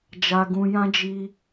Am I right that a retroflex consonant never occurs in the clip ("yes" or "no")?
yes